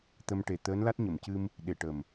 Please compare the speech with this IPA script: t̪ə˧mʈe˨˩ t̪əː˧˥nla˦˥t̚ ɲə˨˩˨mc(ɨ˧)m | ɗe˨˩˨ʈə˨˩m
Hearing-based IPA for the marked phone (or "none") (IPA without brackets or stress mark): ɨ˧